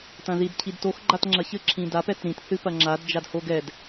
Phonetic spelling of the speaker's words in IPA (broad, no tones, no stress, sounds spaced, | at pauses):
t ɐ̃ ð i d cʰ i d t o x ɡ͡ǃ a t ŋ͡ǁ ɐ ç ɘ ǁʰ ĩ d a p ɛ t ɾ ĩ t θ ɨ p ɐ ŋ͡ǁ a d d͡ʒ a d h o ɡ ɛ d